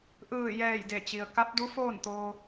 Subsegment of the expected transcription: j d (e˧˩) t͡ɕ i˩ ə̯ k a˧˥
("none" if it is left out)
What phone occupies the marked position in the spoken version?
e˧˩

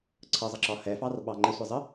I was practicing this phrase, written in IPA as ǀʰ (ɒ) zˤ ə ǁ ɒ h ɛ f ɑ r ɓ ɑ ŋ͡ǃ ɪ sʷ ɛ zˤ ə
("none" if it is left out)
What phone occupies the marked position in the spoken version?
ʌ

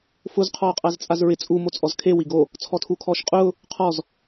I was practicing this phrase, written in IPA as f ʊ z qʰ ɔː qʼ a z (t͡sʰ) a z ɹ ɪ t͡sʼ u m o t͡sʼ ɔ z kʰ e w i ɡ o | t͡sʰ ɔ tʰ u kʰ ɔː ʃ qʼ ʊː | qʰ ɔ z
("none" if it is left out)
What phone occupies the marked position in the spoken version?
t͡sʼ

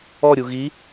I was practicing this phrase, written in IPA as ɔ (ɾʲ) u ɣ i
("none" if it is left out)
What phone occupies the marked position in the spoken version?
ɾʲ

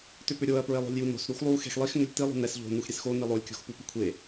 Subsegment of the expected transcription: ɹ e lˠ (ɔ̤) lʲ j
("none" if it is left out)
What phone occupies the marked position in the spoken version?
o̤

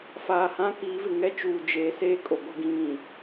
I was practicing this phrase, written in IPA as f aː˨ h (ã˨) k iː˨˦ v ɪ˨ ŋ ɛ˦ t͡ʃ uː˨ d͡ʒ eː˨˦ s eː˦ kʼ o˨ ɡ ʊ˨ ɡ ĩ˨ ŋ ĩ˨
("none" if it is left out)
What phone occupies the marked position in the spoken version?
ã˦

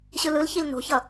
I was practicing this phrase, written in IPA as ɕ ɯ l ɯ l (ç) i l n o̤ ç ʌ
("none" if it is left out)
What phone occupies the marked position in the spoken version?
ç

